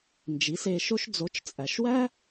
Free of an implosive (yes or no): yes